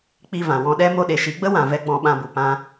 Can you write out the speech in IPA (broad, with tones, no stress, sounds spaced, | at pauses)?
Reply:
k͡p i˧ v ã˨ w ɔ̃˧ ɗ ɛ˦ m o˧ ɗ e˨ ʃ i˨˦ ɡ͡b ə˦ w ã˨ v ɛ˦ ɡ͡b ɔ̃˧ ɓ ã˧ b u˨ p ã˧